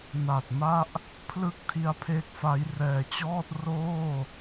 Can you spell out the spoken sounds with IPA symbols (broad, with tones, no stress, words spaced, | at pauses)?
na˨˩t̚ ma˥˩ʔ | pʰlɯ˦˥k̚ tʰi˦˥a̯pʰe˦˥k̚fa˦˥j rɛː˨˩t͡ɕɔː˥˩t̚ roː˥˩